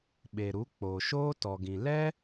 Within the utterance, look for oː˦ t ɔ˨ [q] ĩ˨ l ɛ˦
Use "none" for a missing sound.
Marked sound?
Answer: ɡ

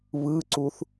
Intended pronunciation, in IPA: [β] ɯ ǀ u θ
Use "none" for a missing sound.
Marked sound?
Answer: β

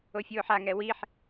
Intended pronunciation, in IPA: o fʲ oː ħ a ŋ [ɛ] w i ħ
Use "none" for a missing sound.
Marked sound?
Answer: ɛ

